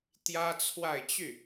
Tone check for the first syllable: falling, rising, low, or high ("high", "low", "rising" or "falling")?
high